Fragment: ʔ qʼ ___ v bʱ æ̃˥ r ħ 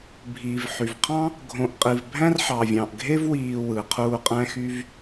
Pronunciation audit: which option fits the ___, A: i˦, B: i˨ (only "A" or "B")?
B